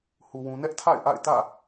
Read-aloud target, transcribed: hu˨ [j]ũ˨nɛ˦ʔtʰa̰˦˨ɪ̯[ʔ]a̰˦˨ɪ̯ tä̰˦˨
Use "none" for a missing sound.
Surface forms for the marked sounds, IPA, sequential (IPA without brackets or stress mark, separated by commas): w, ʔ